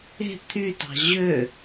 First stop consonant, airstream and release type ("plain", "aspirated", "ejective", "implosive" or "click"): aspirated